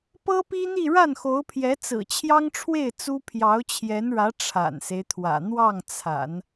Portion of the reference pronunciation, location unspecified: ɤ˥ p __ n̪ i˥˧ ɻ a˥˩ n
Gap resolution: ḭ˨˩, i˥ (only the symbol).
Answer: i˥